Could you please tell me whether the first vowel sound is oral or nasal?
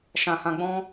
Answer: nasal